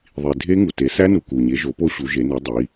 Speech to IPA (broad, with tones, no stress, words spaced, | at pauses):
ðˤi˨ dʱe˦˥ŋu˨ te˨˦ sæ˦˥nu˨ ku˨ɲe˨˦ʒo˨˦po˦˥ ɕu˨˦ʒe˨˦ne˨˦ dˤi˨˦